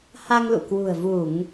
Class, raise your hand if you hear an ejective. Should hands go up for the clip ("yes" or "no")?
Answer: no